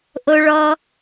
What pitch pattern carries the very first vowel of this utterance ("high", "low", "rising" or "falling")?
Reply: high